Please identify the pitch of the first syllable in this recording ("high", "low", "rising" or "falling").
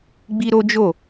high